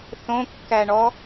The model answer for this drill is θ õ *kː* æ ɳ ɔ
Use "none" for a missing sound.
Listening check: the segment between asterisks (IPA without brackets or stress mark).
kː